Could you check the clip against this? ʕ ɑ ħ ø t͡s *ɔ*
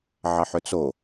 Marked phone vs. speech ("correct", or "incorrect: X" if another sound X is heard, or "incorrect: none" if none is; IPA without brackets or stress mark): incorrect: o